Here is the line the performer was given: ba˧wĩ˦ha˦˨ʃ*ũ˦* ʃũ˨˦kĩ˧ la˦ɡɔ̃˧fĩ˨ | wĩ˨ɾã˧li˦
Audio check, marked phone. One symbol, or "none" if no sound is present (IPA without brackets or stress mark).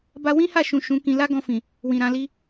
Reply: ũ˨